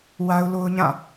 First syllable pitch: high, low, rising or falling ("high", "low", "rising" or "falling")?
high